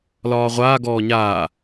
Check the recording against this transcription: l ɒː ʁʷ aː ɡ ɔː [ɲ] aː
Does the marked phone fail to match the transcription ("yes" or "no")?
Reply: no